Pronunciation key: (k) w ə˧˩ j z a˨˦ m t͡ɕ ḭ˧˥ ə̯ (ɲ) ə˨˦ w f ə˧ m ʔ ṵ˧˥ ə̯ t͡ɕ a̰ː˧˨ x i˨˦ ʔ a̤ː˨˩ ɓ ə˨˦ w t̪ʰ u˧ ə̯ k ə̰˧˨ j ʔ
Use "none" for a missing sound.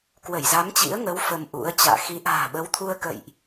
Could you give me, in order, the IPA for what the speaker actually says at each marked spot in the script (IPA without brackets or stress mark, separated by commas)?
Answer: k, ŋ